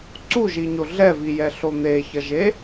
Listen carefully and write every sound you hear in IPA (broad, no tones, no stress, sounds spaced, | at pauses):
ǀ u ʒ i ɲ o ɮ ɛ v i j ɛ ɬ o n̪ e ç ʌ ʒ e